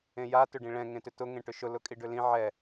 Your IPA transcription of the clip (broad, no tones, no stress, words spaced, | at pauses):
ẽja tʏɖĩɭɛ̃ ŋẽtʏtʊ ŋẽʈʏʃʊ lʊkʼiɖʏlĩ ʕɛ